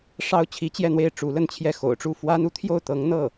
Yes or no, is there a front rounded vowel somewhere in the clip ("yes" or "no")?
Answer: no